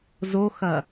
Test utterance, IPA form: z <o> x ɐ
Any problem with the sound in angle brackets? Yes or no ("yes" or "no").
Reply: no